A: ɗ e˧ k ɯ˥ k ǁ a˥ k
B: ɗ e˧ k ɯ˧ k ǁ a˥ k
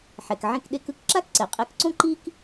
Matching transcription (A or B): A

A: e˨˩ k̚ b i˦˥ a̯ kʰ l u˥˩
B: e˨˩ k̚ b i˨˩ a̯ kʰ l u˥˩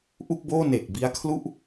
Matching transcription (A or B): A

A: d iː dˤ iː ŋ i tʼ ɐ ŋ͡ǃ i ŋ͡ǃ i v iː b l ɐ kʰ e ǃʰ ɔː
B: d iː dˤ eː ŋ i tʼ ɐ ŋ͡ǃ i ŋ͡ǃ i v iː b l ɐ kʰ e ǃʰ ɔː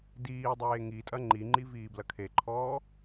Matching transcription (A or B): B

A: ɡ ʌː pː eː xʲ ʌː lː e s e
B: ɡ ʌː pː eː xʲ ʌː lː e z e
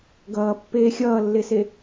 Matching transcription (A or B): A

